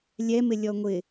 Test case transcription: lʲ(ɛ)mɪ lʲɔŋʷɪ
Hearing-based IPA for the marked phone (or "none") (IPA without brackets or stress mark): ɛ